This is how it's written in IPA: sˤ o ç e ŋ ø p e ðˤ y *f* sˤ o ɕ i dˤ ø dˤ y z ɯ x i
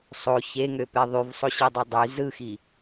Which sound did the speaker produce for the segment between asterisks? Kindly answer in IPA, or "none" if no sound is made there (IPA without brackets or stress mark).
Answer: v